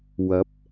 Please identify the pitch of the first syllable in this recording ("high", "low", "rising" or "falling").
rising